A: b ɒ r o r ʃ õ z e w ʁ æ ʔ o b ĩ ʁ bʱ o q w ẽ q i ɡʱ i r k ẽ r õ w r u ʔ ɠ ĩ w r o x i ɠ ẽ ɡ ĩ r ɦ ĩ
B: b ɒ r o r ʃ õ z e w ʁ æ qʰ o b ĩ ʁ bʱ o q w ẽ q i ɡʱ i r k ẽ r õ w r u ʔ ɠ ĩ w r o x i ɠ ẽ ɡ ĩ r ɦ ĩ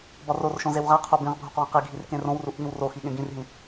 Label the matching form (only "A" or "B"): B